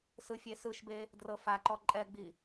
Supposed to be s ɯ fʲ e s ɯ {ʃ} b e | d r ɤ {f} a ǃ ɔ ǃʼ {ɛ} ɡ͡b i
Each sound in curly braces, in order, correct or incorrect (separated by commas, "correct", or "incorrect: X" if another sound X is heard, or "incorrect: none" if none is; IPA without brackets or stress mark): correct, correct, correct